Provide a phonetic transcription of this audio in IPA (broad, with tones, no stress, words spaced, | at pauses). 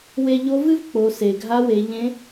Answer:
we˧ʎo˧˥vɨ˥v k͡po˩˧se˩ɡʱa˧˥we˩˧ ʎẽ˧˥